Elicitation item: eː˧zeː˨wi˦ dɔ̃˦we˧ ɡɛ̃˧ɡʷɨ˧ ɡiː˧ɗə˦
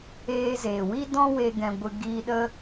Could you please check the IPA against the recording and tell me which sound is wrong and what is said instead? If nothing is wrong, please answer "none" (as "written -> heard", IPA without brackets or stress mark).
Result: none